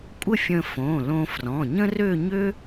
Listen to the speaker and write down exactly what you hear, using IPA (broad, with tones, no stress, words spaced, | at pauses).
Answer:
kʷʼə˥˧fʲə̃˧fõ˩˧˩lõ˧ frɔ̃˩˧˩ɲə̃˥rø˥˧ ɲø˥